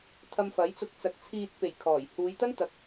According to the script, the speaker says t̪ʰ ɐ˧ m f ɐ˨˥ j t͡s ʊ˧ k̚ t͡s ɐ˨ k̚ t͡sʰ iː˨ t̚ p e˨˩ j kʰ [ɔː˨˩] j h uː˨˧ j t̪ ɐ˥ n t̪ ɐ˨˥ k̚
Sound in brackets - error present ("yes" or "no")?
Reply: no